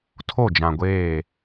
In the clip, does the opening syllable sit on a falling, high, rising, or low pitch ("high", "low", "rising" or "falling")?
falling